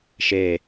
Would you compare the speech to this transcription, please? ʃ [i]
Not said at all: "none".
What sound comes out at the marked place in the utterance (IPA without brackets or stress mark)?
e